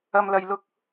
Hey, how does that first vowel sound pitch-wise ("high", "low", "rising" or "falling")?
low